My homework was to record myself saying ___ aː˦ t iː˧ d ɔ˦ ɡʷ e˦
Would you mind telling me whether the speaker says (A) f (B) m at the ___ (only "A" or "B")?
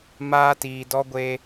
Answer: B